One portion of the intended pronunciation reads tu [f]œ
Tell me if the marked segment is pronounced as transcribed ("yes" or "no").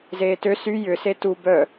no